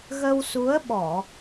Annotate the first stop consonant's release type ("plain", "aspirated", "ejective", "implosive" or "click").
implosive